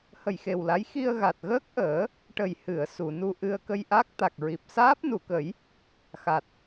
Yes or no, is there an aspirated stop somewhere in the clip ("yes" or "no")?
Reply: no